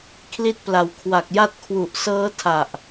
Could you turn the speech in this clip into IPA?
kʰli˦˥t̚pla˩˦wkʰwa˨˩k̚ ja˦˥t̚kʰwu˨˩ʔ sɤː˦˥tʰa˨˩ʔ

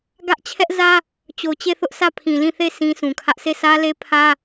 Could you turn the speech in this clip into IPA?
ɡä˦ʔ t͡ɕʰɛ˦ʔzä˦ | t͡ɕo˨t͡ɕe˦˨θʊ˦ʔsʰä˦˨ pʰĩ˨lĩ˦˨θe˦˨ sĩ˦sũ˨kʰä˦ʔ se˦˨sä˦le˦ pʰä˦

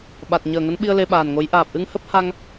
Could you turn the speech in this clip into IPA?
ɓa˨˩t̚ ɲəː˨˩ŋə˨˦nɓi˧ə̯ le˧ ɓaː˨˩nŋo˨˦j ʔaː˨˩p̚ʔɨ˧ŋhə˦˥p̚ ha˧ŋ

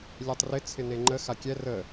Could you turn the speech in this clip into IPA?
lʲɛtˤrɪ t͡sʰɪneŋ͡ǃə xakʲɛ rə

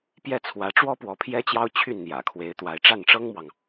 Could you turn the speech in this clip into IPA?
pjɛ˥˩t͡sʰwä˧˥ʈ͡ʂwɔ˥ pwɔ˧˥pʰjɛ˥t͡ɕjɑ˥ʊ̯ t͡ɕʰy˥˩nn̪jä̰˨˩kʰwe˧˥ɪ̯ t̪wa˧˥ɪ̯ ʈ͡ʂa˥˩nʈ͡ʂɤ˥ŋmwɑ˨ŋ

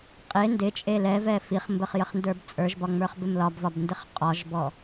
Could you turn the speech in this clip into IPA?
qʼe ndɪt͡ʃʼe lɛvɛ fiχmbəχ jəχndə˞bt͡sʼə˞ʒbɒ ŋ͡mə˞χbɪmlɒbvɒb ndɪχqʼɒʒbɔ

